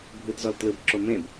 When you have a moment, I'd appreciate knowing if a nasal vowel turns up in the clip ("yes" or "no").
yes